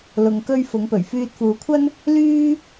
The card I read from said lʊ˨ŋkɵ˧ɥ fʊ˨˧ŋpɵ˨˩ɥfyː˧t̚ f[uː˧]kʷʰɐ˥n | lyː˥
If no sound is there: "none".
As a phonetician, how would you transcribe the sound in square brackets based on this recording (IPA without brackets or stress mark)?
uː˨˧